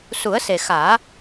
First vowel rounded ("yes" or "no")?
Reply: yes